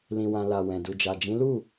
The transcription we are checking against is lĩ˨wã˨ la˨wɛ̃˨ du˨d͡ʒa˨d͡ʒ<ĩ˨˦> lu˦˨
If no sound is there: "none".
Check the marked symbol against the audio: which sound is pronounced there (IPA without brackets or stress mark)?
ĩ˨˦